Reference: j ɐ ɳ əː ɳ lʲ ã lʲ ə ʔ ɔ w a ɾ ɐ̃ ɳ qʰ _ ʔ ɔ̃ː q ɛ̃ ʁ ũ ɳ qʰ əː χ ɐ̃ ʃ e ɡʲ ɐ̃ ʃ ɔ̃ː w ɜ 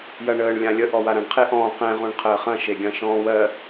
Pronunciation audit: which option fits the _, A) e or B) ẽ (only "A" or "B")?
A